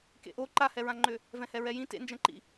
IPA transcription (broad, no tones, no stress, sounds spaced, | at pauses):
k ḛ ʔ o ǃ a h ɛ ɹ ã ŋ͡ǃ ʏ | v ɛ̃ h ɛ ɹ ɛ j ĩ t ḛ n d͡ʒ ɛ̃ ǃ ḭ